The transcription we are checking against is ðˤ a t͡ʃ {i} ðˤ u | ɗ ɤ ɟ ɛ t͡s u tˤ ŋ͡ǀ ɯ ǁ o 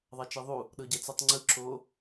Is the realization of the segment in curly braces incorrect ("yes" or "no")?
no